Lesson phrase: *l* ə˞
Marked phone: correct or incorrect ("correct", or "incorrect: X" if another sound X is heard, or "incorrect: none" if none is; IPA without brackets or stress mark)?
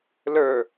correct